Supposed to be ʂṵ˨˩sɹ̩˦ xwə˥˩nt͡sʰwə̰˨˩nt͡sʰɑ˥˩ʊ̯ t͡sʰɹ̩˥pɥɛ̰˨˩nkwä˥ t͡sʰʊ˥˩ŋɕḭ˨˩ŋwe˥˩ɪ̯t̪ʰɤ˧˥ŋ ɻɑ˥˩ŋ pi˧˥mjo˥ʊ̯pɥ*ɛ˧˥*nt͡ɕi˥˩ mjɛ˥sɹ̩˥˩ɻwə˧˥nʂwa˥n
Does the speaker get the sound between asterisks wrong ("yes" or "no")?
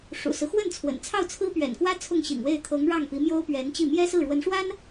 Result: no